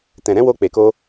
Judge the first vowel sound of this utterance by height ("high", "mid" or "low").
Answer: mid